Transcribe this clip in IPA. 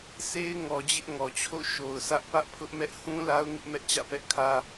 sʰe˦ɪ̯ ŋɔ˨d͡ʑɪ˦ʔ ŋɔ˨t͡ɕʰo̰˦˨ ʃo˨ʊ̯sä˦ʔ pä˦ʔpʰʊ˦ʔmɛ˦ʔ hũ˦ la˦ʊ̯ŋɪ˦ʔ mɛ˦ʔt͡ɕä̰˦˨pɛ˦ʔkʰä˦

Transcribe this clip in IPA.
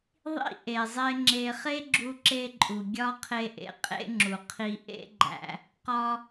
ðˤḭ˥ ʔe˩zˤe˧ ŋ͡ǁe˧ χe˥ɡ͡ǁu˧ǁe˧ ǃʼu˩ ɡʲɒ˥ qʰe˧ʔḛ˧ qʼḛ˥ŋ͡ǁu˩ qʰi˧ ʔḛ˥ɡ͡ǃæ̰˧ | qɒ˧

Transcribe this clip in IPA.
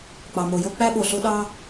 k͡pɑ˩mo˩jo˥ k͡pæ˥ ɓo˩ɬo˥ ɗɑ˥

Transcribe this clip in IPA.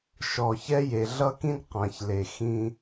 ʃɔ˨çɛ˦je˨ ɮʌ˦˨kĩ˦d qã˨çle˨ xĩ˦

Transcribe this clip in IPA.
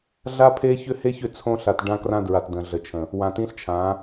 ɮa˦pʰe˦çʏ˦ he˦çʏ˨ t͡sʰõ˦ɬa˨t ɖã˦krã˦dɹa˨t də̃˨ɮə˨t͡ʃʰə̃˨ | wã˨tĩ˦ɬt͡ʃʰã˨˦

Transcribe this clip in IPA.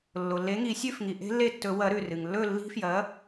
lːo˩lːe˨˥ŋi˨˩˦sʲʉ˥˨f ŋi˩ ʔe̤˦˥lːe˥˨tːɵ˨˩˦wɐ˨˥ ɾʉ˧˩rɨ˩ŋ lːɵ˥˨lːi̤˦˥fjɐ˨˥

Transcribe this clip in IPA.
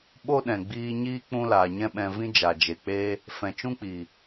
ɓo˦ɗɛ̃˨ɡ͡biː˧ɲiː˦ k͡pũ˦laː˨ɲɛ̃˦ɓɛ̃˧ vĩ˦d͡ʒa˨d͡ʒe˨k͡peː˦ | fɛ̃˨t͡ʃũ˦k͡piː˨

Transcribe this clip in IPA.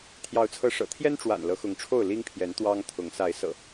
t̪ʰjɑ˨˦ʊ̯t͡sʰɤ˨˦ ʂɤ̰˨˩ t̪ʰjɛ˦nʈ͡ʂwa̰˨˩n lɤ˨˦xʊ˨˦ŋʈ͡ʂʰo˥˨ʊ̯ li˦ŋpʰjɛ˨˦n t̪wɑ˦ŋt̪ʰʊ˨˦ŋ sa˨˦ɪ̯sɤ̰˨˩

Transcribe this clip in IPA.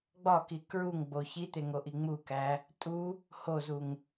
ɡ͡bɒki kɹuŋɡ͡bo çit̪eŋoʔi ŋ͡mukæ | tʼu | hozuŋ

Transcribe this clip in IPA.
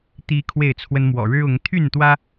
t̪i˦kʰwe˥˨ɪ̯t͡sʰwə˦n mwɔ̰˨˩ɻɻ̩˦ ʊ˨˦ŋ t̪ʰy˥˨nt̪wä˦

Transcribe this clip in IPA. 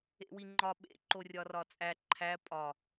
ḛwiŋ͡ǃɒ ɓḛ ǃorʲɒrɒt͡sʼæ ǃʰæ pʼɒ

